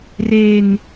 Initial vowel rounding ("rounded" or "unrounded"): unrounded